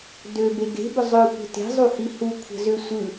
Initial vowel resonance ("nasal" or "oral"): oral